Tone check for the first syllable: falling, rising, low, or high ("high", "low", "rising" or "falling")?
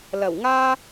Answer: low